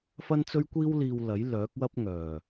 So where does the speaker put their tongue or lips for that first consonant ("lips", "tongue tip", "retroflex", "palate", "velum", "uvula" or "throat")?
lips